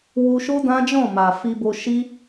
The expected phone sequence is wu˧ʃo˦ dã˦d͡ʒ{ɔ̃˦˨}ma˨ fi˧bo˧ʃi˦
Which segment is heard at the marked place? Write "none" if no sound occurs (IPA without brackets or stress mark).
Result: ɔ̃˦˨